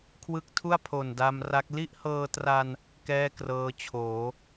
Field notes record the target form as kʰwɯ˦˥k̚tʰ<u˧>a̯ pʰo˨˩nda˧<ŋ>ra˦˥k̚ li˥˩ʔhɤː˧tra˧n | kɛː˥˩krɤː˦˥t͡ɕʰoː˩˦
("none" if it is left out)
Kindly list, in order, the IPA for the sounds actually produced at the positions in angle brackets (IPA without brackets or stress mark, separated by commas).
u˥˩, m